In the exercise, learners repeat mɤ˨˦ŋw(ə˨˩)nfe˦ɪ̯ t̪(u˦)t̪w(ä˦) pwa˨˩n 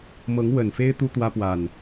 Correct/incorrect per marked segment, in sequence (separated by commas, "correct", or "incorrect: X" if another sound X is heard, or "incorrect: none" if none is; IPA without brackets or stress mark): correct, correct, correct